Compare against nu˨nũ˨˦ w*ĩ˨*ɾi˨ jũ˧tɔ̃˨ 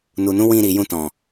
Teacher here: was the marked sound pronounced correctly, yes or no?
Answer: no